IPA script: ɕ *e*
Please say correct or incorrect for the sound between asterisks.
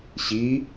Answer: incorrect